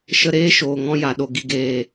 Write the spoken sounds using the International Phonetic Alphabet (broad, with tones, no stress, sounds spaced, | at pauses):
ʃ ə˧ ɾ eː˦ ʃ oː˨ ŋ ɔ̃˧ j a˨ ɗ o˨ ɡ i˨ ɡ eː˨